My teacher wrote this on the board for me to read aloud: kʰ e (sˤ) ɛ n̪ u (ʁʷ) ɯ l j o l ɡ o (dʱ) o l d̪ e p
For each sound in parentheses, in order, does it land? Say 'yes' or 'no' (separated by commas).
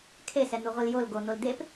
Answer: no, yes, no